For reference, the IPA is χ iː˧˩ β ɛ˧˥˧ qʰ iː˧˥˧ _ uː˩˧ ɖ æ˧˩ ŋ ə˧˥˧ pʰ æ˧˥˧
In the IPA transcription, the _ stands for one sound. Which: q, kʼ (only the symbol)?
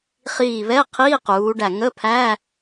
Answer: q